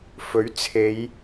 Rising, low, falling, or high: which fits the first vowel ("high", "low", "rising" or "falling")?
rising